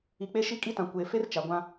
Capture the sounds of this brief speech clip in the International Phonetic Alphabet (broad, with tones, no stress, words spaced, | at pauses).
i˨k͡pe˦ʃi˦ kʼi˦tã˨ kʷeː˨fe˦r t͡ʃa˨ɡʷã˦